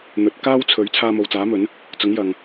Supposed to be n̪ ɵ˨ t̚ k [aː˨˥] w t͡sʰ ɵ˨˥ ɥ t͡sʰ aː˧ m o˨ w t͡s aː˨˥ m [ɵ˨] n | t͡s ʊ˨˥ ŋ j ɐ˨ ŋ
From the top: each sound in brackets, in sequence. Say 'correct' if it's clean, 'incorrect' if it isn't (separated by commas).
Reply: incorrect, incorrect